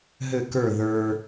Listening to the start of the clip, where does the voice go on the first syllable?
falling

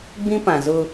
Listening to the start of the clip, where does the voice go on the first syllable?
high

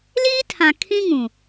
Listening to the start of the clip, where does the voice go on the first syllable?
high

